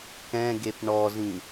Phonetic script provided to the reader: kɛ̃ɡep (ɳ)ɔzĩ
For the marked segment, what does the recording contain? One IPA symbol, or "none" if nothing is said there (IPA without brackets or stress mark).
ɳ